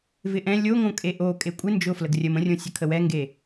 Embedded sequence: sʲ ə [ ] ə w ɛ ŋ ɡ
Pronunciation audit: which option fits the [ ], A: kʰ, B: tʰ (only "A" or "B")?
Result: A